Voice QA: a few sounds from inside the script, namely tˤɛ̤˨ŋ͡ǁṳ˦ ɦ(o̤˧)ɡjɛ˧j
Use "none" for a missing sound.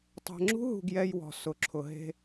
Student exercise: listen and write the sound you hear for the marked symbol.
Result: ṳ˧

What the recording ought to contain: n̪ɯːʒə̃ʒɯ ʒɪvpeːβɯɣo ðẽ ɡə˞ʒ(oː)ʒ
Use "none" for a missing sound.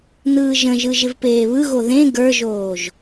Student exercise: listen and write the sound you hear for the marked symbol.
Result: oː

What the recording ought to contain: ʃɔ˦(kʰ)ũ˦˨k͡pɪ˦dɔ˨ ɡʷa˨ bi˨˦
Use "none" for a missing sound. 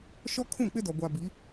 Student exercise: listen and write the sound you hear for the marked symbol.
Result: kʰ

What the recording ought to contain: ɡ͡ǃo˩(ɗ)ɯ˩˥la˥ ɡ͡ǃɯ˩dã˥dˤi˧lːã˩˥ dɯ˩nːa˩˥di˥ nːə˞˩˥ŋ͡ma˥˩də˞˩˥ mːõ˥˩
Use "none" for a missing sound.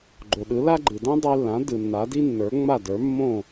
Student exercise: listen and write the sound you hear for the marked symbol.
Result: ɗ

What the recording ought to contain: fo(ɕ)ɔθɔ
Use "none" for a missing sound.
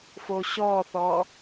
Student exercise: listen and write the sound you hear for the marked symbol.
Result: ɕ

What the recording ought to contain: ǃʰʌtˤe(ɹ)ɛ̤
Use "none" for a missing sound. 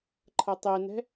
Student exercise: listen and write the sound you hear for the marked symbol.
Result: n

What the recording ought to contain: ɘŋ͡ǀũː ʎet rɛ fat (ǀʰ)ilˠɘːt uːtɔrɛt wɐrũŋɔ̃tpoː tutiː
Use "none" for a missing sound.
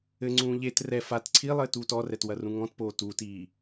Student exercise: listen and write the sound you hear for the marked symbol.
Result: ǀʰ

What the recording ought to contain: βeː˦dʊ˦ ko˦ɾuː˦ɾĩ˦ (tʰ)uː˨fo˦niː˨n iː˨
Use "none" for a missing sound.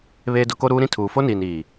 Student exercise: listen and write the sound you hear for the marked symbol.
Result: tʰ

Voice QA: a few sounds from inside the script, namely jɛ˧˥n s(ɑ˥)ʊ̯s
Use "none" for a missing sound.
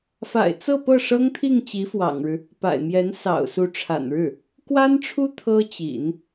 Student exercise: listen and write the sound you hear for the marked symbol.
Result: ɑ̰˨˩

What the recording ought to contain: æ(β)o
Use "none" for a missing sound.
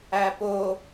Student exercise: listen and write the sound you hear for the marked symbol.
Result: p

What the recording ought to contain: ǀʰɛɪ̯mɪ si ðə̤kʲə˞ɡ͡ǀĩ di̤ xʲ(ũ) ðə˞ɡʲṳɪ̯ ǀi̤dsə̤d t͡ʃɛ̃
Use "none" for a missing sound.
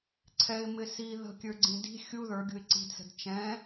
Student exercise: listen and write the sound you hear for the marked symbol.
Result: u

